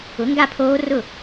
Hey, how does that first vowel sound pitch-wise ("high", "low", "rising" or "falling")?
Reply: rising